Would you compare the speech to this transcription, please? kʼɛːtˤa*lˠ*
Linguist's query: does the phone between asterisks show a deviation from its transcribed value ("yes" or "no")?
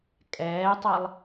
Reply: no